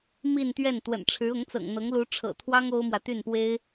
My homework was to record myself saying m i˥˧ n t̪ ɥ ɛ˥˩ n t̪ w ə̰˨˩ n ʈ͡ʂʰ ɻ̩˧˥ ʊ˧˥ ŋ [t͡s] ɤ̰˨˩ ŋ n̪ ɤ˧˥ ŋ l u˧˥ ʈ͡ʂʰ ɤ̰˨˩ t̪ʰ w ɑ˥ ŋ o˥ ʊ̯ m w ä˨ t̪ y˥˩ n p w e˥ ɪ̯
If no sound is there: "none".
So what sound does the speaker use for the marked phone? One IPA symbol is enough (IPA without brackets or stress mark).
t͡s